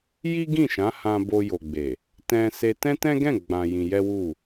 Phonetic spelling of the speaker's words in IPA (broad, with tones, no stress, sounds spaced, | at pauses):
j i˦ ɡ ĩ˦˨ ʃ ã˨˦ h ã˧ b o˧ j o˨ ɡ͡b e˨ | t ɛ̃˧ s e˧ t ɛ̃˦ t ɛ̃˦ ɡ ɛ̃˦˨ ɡ͡b ã˧ j ĩ˧ j ɛ˦ w u˦˨